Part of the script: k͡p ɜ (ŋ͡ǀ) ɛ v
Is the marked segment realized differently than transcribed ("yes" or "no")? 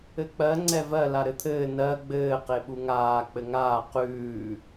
no